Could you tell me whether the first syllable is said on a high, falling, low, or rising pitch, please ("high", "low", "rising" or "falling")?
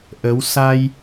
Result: rising